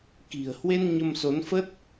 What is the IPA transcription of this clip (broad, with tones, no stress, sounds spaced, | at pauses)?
k i̤˨˩ ə̯ h w e˧ n ɲ ə˧ m s o˨˦ n f ə˦˥ t̚